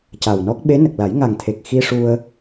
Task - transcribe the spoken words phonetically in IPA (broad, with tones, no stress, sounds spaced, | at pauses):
c a˨˩ w n ɔ˦˥ k̚ ɓ e˧˥ n ə˨˩ k̚ l a˨˩˦ j ŋ a˨˩ ŋ t̪ʰ e˨˩ k̚ x i˧ ʂ u˧ ə̯